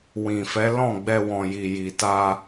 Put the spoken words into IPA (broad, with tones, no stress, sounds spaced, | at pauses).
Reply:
w ĩ˨ f ɛ˨˦ l ɔ̃˦˨ ɡ͡b ɛ˧ w ɔ̃˨ j i˨ j i˨ t a˧